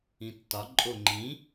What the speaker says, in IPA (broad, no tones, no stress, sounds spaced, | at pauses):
ĩ tː ɒ ǃʼ o ŋ͡ǃ ĩ